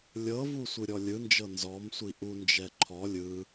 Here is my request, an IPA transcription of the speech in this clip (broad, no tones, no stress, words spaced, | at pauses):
lʲɤvu sʷɯɾʲɔlʲɯnd͡ʒɤ nzɔmsʷi ʔund͡ʒɛ ǃʰɔ lʲɯ